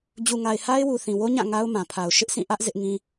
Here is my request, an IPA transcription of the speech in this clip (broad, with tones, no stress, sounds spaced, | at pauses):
d͡ʑ u˨ ŋ a˨ ɪ̯ h a˦ ɪ̯ w u˨ θ ĩ˨ w o˦ ɲ ã˦˨ ŋ a˦ ʊ̯ m ã˨ pʰ a˨ ʊ̯ ʃ ɪ˦ ʔ sʰ ĩ˦˨ ʔ ä˦ ʔ z ɪ˦ ʔ ŋ ĩ˦